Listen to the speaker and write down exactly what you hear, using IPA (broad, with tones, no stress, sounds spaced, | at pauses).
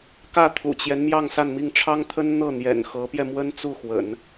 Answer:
k ä˥˩ t̪ʰ ṵ˨˩ t͡ɕ j ɛ˦ n m j ɑ˥˧ ŋ s a˥˧ n m i˥˩ ŋ ʈ͡ʂʰ ɑ˥ ŋ t̪ʰ ə˥ n n̪ ɤ˥˩ n̪ j ɛ̰˨˩ n x ɤ˧˥ p j ɛ˧ m w ə˥ n t͡s u˥˩ x w ə̰˨˩˦ n